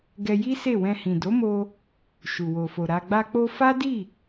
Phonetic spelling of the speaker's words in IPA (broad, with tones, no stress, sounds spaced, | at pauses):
ɡ ɛ˧ j i˦ s e˦˨ w ɛ̃˧ h ĩ˨ d o˨˦ m o˧ | ʃ u˨ w o˨ f o˨ ɾ a˨ ɡ͡b a˧ k͡p o˧ f a˦ d i˦˨